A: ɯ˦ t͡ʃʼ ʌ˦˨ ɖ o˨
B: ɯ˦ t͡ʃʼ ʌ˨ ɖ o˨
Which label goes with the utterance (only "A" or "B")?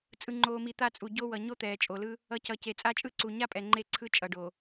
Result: B